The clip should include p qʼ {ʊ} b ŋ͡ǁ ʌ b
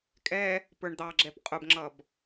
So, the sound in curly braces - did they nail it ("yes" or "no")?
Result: yes